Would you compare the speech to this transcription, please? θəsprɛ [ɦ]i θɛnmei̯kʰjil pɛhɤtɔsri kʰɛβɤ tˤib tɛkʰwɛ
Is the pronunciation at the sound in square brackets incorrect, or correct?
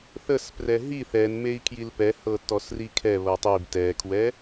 correct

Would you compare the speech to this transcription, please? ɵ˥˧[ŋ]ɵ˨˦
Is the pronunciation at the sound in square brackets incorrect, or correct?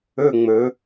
incorrect: ŋ͡m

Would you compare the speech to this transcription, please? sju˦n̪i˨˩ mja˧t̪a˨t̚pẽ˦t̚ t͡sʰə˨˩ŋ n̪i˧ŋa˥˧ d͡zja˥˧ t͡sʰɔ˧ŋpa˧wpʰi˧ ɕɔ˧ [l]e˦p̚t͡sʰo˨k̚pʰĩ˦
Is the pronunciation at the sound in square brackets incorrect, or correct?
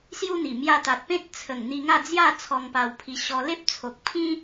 correct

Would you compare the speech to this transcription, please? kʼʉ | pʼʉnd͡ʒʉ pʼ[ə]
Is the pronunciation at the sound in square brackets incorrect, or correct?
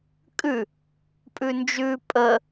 correct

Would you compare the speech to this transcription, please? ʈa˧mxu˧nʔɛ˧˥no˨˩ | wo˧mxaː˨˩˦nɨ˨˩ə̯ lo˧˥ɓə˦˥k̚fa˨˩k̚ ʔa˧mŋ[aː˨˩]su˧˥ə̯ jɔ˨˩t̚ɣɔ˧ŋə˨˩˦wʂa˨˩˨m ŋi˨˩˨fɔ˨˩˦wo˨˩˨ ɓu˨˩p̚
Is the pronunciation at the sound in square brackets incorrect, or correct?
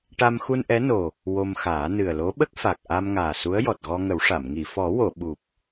correct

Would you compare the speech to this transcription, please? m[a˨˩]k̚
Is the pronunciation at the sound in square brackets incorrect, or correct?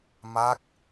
incorrect: a˦˥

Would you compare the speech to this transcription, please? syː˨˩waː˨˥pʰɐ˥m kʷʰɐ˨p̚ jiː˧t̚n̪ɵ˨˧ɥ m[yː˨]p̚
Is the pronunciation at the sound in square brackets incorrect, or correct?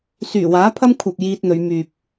correct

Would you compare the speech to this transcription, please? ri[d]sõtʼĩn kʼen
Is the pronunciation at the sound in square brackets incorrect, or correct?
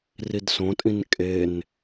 correct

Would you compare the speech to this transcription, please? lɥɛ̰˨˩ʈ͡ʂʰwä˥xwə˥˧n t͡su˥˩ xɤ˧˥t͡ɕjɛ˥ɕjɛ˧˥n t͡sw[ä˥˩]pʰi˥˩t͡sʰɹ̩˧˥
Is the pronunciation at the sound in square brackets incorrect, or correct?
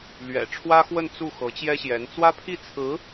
incorrect: ä˥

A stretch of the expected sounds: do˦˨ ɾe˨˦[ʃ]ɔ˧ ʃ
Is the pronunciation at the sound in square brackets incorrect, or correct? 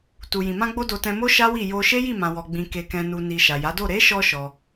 correct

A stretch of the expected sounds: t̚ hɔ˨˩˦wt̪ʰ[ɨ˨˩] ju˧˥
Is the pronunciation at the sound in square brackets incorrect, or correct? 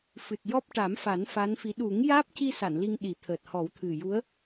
correct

